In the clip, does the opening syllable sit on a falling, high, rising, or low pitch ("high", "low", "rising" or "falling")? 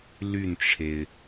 falling